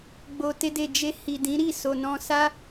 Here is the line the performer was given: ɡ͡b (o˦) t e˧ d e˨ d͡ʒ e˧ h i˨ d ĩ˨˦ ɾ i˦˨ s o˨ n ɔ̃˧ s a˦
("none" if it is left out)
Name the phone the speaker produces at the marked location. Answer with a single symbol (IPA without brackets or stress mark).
o˨